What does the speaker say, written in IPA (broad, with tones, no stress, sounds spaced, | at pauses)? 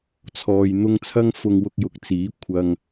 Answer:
t͡sʰ ɔː˧ j n̪ ʊ˥ ŋ t͡sʰ ɐ˥ ŋ f ʊ˧ ŋ w ʊ˧ k̚ j ʊ˨˥ k̚ t͡s iː˨˥ kʷʰ ɐ˧ ŋ